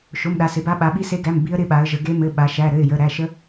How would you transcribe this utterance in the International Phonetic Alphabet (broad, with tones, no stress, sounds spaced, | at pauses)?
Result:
ʃ o˩˧˩ m ɗ a˩˧ s ɪ˩˧ b a˧˥ ɓ a˩˧ ɓ i˧˥ s e˧˥ ɡ æ˩˧˩ m b i˧˥ ə̯ ɾ ɪ˧˥ ɓ a˩˧ ə̯ ʒ ə˩˧ ɡ e˧˥ m ɘ˩˧˩ ɓ a˩˧ ʃ æ˩˧˩ ɾ ɘ˩˧˩ ɪ̯ j ə˩˧˩ ɾ æ˩˧˩ ʃ ə˧˥